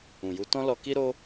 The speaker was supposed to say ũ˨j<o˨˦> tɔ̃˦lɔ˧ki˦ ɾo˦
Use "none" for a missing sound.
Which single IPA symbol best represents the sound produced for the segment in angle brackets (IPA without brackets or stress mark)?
u˨˦